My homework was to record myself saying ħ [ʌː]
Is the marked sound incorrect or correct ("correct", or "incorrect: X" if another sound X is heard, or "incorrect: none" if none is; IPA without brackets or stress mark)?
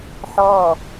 incorrect: ɔː